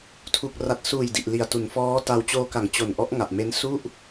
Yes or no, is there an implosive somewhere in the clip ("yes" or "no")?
no